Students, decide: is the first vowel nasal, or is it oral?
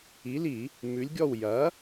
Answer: oral